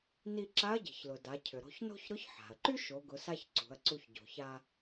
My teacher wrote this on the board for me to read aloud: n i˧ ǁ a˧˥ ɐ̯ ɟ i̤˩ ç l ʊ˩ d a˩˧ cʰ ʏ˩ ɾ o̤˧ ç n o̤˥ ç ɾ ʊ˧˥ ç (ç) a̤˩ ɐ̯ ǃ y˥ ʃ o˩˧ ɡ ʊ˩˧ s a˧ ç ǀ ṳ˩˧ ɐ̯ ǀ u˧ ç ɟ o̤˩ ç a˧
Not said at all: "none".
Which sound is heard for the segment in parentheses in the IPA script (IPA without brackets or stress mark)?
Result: ħ